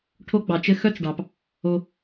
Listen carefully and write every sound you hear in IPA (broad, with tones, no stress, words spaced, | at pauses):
ʈʰo˦ɡ͡bɑ˩t͡ʃɘ˦ xœ˥t͡s ɖɑ˩p | o˨